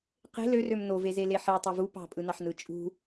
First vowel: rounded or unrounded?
unrounded